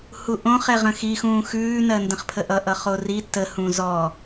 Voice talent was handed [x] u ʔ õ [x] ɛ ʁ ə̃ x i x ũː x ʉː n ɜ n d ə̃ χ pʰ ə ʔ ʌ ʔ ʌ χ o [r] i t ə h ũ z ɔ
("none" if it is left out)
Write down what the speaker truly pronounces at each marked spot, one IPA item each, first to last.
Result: h, χ, r

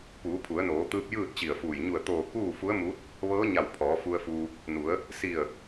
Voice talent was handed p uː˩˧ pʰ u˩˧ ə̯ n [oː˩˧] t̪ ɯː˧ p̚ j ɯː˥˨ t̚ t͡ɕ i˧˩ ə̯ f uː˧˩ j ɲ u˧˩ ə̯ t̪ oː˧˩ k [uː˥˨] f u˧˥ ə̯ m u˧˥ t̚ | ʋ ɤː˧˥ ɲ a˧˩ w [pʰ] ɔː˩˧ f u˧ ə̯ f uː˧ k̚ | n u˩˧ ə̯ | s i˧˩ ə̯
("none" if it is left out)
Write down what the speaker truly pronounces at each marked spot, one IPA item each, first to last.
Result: oː˩˧, uː˥˨, pʰ

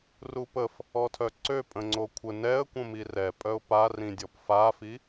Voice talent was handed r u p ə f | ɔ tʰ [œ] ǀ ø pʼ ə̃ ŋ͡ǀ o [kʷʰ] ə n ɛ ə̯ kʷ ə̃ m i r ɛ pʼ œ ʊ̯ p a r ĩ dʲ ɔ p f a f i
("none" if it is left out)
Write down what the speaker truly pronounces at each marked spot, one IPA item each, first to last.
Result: œ, kʷʰ

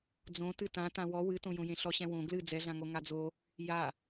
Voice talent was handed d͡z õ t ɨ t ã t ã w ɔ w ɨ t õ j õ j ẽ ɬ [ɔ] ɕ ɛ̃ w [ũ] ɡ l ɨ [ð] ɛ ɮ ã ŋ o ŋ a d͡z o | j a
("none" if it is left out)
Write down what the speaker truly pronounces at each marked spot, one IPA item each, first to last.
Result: ɔ, õ, d͡z

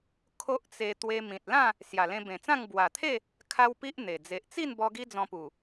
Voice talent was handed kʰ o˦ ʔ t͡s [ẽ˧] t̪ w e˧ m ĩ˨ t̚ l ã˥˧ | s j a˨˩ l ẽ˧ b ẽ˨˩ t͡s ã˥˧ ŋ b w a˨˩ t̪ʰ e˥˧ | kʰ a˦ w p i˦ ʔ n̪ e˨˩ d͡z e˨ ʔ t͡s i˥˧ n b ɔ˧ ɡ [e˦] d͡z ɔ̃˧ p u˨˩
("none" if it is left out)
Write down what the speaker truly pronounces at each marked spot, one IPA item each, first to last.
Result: e˧, i˦

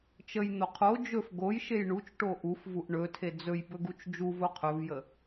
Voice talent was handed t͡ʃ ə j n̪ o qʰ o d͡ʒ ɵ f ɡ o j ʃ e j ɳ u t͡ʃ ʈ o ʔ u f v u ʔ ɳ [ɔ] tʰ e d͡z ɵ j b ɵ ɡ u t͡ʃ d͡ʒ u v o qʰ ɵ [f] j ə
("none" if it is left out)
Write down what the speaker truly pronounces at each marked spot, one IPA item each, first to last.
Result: ɵ, v

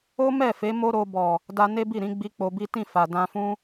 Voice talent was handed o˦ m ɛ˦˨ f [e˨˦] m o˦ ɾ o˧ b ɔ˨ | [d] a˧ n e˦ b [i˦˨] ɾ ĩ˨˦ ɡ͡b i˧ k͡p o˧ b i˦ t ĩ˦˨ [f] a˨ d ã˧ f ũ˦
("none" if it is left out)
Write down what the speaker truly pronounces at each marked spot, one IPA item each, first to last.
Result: e˨˦, d, i˦˨, f

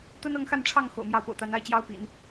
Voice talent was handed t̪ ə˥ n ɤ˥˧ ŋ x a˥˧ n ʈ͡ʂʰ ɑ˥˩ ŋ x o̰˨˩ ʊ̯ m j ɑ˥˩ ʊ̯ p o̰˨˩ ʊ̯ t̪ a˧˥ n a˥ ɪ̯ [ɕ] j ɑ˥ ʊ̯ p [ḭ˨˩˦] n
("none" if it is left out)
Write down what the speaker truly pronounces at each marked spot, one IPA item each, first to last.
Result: t͡ɕ, ḭ˨˩˦

